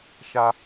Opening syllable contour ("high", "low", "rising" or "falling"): high